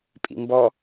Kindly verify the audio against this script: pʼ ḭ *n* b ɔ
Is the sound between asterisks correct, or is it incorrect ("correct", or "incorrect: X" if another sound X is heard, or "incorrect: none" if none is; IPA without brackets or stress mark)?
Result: incorrect: m